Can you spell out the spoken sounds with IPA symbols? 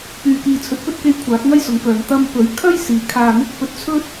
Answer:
p yː˨ k iː˨ t͡sʰ ɵ˨˥ t̚ p ɵ˥ t̚ k e˧ j kʷʰ aː˨˥ k̚ ŋ ɐ˥ j s ʊ˨˥ ŋ k œː˨ ŋ t̪ ɐ˧ m p ɵ˨˥ ɥ kʰ ɐ˥ j s iː˨ kʰ aː˧ n̪ ɪ˥ k̚ p ɵ˧ t̚ t͡sʰ ɵ˥ t̚

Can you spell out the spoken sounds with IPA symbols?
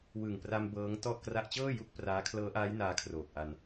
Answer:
w ɯ˨˩ ŋ p r a˧ m b ɤː˦˥ ŋ t ɔ˥˩ ʔ k r a˦˥ ʔ t͡ɕ ɤː˥˩ j u˦˥ k̚ p r aː˦˥ kʰ l ɤː˦˥ ʔ aː˦˥ j n aː˦˥ kʰ r oː˨˩ k̚ ʔ a˧ n

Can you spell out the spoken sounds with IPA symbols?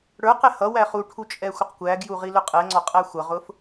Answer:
ɽ ə˞ q ɛ h ʌ w æ χ u ʈʰ u t͡ʃʼ ɛ xʷ ə q kʷ æ ɡ j u ʁ i l ʊ qʼ ɛ ŋ͡ǀ ɔ qʼ æ xʷ ʌ ʁ ʊ f

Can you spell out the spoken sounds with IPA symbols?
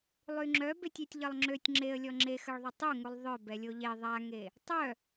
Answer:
lˠ y ŋ͡ǁ œ b e tʲ y tʲ ʎ ə lˠ ŋ͡ǁ ø tʲ ŋ͡ǁ e ə̯ lʲ ɔ ŋ͡ǁ e x ə ɭ ðˤ ø tˤ o ŋ u lˠ ðˤ œ b ɛ lʲ o ʎ e ðˤ a ŋ e | tˤ œ

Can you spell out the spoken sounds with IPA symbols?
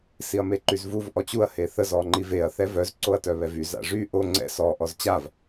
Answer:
s i ɐ̯ m e ǃ y z v u v ʔ ɔ t͡ɕ u ɐ̯ h e θ ə z ɔ ŋ͡ǃ i v e ɐ̯ θ ɛ v œ z ǀ o ɐ̯ t œ β ɛ v y z a̰ ʐ y ʔ o ŋ͡ǀ ɛ̰ s ɔ ʔ ɔ z t͡ɕ a v

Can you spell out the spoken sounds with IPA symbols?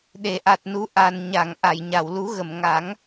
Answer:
ɗ e˨˩˨ ʔ a˨˩ t̚ n u˨˩˦ ʔ a˨˩ n ɲ a˨˩˨ ŋ ʔ a˨˩˨ j ɲ a˨˩˨ w l u˨˩˦ ɣ ə˨˩˨ m ŋ a˨˩˦ ŋ

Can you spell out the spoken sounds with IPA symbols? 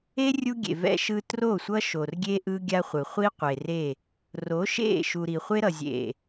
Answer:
e˦ rʲ u˦ ɡʲ ḛ˨ v ɛ̰˦ ʃ ɯ˦ t r o˦˨ sʷ ʌ˦ ʃ o˨ r ɡʲ e˦ ʔ ɯ˦ ɡʲ a˦ χʷ ɯ˨ χʷ i˦ qʷ e˨ r e˦˨ | r o˨˦ ʃ ḛ˦˨ ʃ u˨ ɾ i˨ χʷ e˦ ɾ ʌ˨ zʲ ḛ˨

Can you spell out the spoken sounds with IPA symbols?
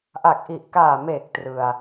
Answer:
ʔ a˨˩ k̚ ʔ i˨˩ ʔ k aː˨˩ m eː˨˩ k̚ t r ɯ˧ a̯

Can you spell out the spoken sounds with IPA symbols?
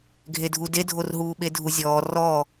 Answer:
ɡʱ e dʱ u d e dʱ o r ɦ uː ɓ e dʱ u zʲ ɔː r ɔ

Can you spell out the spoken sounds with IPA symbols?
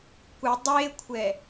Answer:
kʷ ɨ dˤ e kʷʰ ɛ

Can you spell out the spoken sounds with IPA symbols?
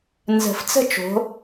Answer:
n z ə̤˨˩˦ f t͡s ə̤˥˧ t͡ʃ o̤˩˥

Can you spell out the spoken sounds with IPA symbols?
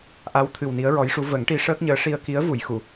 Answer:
ʔ a˧˥ w t̪ʰ ɨ˨˩ w n i˧˥ ə̯ ɹ ɔ˧˥ j ʂ u˧˥ v ə˨˩˦ ŋ ʈ i˧˥ ʂ əː˦˥ k̚ ɲ əː˧˥ ʂ i˧ ə̯ k i˧˥ ə̯ v u˨˩˨ j x u˨˩˨

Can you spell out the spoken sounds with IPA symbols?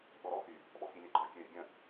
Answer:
ɠ ɔ ɾ ɔ x y | ɓ ɔ f i lʲ ɛ ɡ͡ǃ ɔ kʲ ø ɾʲ ə ɡʲ ə̃

